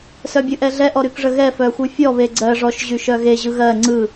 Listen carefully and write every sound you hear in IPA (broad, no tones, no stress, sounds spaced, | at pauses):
s œ bʲ ɯ ʔ ɛ ɮ ɛ ʔ ɔ ɾ y k ʐ ə ɣ ɛ f œ xʷ ɯ fʲ ɔ β e ɡ͡ǀ ɜ ʐ ɔ ʃ ʑ y ʃ œ ɣ e ʑ ɯ ɣ ɜ ŋ͡ǀ ɯ